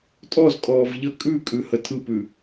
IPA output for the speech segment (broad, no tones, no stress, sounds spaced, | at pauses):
tʼ ɔ z kʼ ɔː v ʎ ə kʼ ʉ kʼ ʉ h ə tʰ ɯ p ʉ